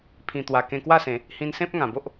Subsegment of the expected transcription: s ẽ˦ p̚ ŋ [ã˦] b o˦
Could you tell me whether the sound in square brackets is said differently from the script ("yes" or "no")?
yes